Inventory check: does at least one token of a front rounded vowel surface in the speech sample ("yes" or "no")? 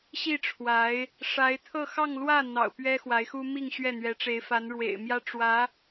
no